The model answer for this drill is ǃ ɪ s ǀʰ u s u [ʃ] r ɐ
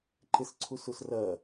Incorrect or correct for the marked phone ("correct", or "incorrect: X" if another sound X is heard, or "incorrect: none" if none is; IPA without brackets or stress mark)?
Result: incorrect: s